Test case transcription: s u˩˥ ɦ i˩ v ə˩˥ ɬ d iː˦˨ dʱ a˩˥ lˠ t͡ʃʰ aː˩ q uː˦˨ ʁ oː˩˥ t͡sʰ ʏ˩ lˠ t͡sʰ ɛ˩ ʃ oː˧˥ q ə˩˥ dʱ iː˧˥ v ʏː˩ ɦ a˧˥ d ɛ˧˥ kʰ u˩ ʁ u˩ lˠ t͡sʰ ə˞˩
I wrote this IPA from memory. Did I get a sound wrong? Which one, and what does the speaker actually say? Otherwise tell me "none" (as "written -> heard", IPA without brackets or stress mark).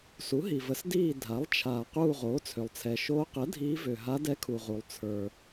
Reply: ɬ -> s